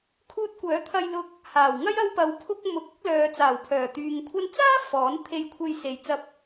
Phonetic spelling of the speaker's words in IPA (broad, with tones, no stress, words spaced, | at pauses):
kʰuː˧t̚kʷœː˨˥t̪ʰɐ˧jlʊ˧k̚ | haː˨˩wŋɐ˥j ɐ˧wpɐ˨˧wpʰʊ˧k̚ mʊ˨˥k̚ʊ˨˥k̚lœː˨ t͡saː˨˩wpʰœː˨˩t̪yː˨ŋkʷʰɐ˥n t͡saː˥ fɔː˨˥nt̪ʰe˧jkʷʰe˧j se˨jt͡sɐ˧p̚